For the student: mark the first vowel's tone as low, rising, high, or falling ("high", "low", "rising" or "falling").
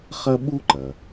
high